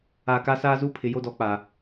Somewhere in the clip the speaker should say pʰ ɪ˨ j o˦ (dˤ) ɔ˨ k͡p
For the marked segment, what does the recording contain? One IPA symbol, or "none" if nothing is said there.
d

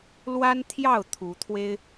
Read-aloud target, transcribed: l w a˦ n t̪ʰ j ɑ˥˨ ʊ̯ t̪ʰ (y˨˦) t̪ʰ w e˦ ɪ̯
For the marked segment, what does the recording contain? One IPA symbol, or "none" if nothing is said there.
u˨˦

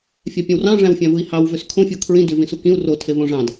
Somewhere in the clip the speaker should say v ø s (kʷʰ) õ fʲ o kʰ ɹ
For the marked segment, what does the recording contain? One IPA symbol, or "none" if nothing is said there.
kʰ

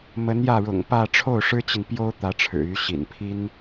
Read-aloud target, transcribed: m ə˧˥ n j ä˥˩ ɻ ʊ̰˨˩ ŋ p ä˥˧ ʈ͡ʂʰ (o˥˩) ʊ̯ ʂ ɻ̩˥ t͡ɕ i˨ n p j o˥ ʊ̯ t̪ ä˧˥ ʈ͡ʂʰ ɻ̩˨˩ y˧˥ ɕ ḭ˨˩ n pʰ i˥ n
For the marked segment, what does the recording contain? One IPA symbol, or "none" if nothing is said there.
o˥˩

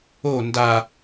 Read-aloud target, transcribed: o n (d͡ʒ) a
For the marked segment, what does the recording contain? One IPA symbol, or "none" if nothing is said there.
d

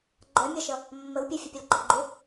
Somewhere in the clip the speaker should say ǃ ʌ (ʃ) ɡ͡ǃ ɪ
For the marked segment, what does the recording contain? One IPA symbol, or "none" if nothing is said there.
none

